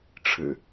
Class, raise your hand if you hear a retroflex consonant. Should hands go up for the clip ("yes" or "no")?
yes